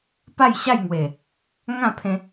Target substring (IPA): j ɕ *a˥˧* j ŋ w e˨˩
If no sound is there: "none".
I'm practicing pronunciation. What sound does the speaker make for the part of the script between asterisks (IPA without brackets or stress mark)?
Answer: a˥˧